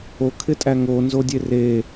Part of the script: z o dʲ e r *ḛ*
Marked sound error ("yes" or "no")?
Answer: yes